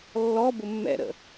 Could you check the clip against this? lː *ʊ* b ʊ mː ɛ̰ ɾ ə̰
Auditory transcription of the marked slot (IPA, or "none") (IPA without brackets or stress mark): ɔ